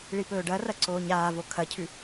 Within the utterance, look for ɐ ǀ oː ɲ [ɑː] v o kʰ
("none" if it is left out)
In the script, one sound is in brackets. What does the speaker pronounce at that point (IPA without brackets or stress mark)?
aː